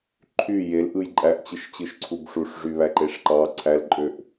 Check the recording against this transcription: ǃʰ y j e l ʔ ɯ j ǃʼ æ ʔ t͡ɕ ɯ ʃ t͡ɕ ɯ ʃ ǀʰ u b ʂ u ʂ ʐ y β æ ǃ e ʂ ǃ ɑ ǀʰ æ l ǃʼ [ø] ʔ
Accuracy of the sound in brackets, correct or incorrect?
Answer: correct